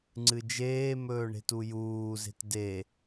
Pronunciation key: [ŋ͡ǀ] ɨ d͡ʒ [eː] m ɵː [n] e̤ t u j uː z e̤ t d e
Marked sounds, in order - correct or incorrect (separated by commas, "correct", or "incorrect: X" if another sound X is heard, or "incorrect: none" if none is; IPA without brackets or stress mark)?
correct, correct, incorrect: ɳ